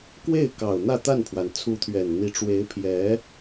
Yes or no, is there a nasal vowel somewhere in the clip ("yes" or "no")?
no